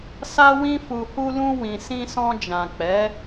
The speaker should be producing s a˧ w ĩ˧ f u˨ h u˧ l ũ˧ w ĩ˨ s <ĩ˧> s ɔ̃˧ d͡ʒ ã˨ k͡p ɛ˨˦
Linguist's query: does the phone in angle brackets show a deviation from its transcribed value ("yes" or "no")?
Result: no